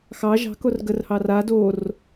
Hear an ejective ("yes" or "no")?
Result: no